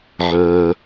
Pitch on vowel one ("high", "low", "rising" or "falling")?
low